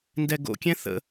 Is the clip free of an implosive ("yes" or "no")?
yes